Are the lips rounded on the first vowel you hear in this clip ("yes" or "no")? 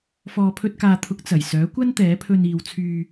yes